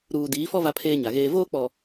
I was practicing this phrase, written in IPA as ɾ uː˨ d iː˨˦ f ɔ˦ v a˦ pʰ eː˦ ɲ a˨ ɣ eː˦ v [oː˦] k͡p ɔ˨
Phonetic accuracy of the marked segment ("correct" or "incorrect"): correct